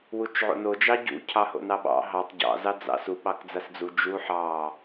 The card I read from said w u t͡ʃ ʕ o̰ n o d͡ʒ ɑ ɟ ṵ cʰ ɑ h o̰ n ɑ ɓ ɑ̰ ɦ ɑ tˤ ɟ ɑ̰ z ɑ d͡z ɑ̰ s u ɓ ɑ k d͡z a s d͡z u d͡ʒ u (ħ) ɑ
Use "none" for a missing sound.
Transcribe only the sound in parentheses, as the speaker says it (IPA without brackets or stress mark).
ħ